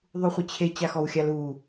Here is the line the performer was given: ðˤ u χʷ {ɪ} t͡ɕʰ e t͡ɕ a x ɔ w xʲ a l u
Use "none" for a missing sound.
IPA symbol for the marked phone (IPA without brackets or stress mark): ɪ